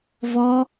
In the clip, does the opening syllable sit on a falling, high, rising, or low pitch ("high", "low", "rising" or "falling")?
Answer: high